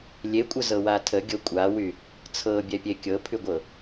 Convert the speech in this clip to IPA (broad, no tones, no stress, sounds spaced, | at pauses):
lʲ e kʷʼ ə z ɤ w a tʰ ə ɡʲ ɤ kʷʼ a w y | t͡sʰ ɤ bʲ ɛ pʲ e kʲ ɤ pʰ y ɡʷ ɤ